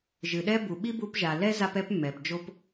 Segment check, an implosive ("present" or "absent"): present